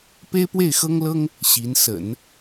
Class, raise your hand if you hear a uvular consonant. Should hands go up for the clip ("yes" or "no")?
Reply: no